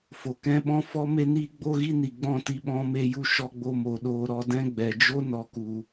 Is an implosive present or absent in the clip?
present